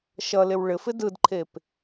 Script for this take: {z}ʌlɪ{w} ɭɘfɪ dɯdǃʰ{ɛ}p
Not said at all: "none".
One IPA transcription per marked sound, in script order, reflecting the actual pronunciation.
ʃ, w, e

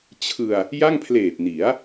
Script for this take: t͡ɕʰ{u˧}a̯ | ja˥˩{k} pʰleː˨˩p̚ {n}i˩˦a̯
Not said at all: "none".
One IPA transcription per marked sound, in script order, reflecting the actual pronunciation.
ɯ˧, ŋ, n

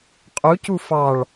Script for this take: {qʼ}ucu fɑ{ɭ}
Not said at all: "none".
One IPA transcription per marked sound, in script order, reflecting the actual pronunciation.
qʼ, ɭ

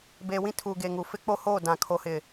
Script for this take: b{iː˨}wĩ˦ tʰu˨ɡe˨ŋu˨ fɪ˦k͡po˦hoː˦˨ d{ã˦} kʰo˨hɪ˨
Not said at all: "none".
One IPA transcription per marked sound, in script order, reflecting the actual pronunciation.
eː˨, ã˨

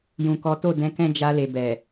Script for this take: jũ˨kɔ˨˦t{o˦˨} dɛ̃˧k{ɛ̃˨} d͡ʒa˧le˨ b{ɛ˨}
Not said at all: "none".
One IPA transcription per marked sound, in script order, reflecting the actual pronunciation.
o˦˨, ɛ̃˦, ɛ˨

